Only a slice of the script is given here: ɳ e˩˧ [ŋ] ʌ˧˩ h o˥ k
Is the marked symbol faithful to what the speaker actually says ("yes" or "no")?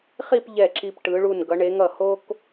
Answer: yes